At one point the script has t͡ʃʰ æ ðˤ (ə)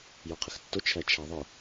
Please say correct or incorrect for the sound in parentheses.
incorrect